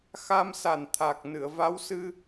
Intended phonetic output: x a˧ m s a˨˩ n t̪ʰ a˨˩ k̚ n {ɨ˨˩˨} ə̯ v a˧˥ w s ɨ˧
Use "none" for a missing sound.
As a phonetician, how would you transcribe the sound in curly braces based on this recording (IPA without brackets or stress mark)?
ɨ˨˩˨